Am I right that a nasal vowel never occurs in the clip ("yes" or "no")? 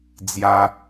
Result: yes